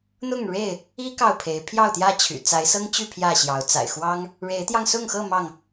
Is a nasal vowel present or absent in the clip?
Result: absent